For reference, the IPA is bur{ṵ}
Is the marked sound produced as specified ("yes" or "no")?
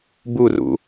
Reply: yes